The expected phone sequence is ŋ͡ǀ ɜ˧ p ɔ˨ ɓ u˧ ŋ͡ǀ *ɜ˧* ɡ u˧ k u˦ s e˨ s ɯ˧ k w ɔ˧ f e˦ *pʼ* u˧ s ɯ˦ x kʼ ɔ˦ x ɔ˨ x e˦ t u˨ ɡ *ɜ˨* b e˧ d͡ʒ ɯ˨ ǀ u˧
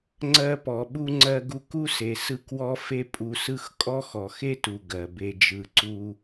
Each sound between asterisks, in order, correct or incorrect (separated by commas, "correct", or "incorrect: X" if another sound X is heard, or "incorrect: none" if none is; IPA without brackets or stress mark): correct, correct, correct